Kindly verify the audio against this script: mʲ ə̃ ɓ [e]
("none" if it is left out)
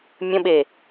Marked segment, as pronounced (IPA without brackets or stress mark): e